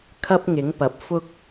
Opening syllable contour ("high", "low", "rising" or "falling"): high